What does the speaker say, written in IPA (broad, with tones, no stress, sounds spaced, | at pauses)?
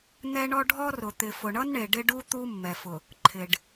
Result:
n̪ ɛ˦ ɳ ɔ˦ ɖʱ ɔ˦ r ʊ˨ t̪ ɪ˨ f ʊ˨ ɳ ʌ˦ n ɳ e˨ ɖ ɪ˦ ɖ u˦ t̪ u˦ mː ɛ˨ f ʊ˨ | ǃʰ ɪ˨ ɖ